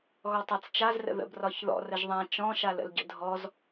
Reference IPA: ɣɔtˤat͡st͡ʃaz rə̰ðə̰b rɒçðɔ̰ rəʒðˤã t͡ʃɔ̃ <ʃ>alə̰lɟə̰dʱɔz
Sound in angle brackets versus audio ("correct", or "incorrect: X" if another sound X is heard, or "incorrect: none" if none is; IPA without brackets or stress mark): correct